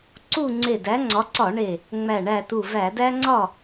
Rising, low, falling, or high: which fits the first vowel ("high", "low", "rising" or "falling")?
falling